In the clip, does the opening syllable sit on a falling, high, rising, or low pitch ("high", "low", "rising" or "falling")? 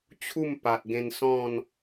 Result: falling